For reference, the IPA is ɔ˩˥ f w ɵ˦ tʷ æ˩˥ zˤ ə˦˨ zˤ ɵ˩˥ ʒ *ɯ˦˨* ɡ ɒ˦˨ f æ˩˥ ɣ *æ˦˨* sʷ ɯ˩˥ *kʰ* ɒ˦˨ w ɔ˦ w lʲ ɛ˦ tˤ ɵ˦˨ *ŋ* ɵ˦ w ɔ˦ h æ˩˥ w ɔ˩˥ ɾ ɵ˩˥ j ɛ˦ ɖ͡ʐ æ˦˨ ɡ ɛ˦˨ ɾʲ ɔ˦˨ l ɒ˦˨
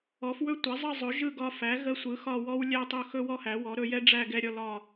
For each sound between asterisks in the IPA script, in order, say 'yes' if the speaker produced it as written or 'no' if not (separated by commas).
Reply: yes, no, no, no